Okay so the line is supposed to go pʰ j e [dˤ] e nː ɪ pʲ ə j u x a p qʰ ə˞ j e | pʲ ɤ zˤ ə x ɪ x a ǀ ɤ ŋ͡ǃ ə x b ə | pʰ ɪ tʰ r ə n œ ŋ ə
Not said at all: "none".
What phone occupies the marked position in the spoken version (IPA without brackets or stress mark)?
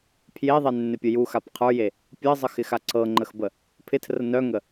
ðˤ